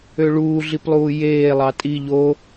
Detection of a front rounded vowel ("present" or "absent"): present